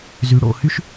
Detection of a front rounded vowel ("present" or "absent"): present